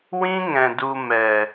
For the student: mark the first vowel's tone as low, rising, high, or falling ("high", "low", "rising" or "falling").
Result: high